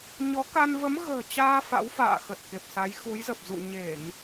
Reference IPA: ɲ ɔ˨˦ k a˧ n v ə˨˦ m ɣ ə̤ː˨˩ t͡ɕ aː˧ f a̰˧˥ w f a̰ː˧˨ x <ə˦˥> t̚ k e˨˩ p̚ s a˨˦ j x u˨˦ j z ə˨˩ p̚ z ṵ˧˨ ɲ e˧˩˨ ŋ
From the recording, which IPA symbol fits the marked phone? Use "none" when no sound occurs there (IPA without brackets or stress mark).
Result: ə˨˩